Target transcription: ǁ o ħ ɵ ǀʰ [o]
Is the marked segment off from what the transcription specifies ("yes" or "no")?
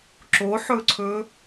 yes